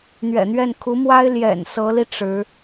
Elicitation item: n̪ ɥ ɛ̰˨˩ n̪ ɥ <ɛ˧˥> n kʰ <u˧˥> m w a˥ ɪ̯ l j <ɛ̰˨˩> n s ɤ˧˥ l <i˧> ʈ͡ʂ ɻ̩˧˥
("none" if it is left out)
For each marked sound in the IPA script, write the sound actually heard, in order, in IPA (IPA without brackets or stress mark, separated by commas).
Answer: ɛ˥˩, u˧˥, ɛ̰˨˩, i˧